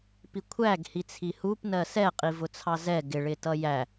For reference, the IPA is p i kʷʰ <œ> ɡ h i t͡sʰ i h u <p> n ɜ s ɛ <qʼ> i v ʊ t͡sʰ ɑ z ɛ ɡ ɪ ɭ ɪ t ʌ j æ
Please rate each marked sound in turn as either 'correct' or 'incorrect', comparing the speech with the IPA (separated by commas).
incorrect, correct, correct